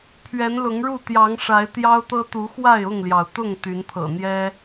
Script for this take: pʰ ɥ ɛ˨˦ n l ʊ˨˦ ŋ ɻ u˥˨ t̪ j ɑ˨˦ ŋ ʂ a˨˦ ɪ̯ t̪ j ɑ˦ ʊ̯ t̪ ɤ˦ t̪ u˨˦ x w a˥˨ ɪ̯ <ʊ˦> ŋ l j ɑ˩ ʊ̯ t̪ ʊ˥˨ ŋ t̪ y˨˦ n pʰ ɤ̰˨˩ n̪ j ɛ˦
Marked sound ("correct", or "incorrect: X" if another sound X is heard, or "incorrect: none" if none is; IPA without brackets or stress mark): incorrect: ʊ˥˨